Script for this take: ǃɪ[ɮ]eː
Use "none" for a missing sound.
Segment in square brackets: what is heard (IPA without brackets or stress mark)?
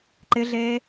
ɮ